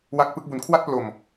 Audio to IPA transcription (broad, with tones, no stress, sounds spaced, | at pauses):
w a˦˥ k̚ p ɯ˦˥ k̚ b u˧ n kʰ w a˥˩ t̚ p l o˧ m